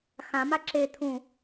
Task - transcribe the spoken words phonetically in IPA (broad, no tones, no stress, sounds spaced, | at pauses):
x ã m a ǁ e t̪ʰ ũ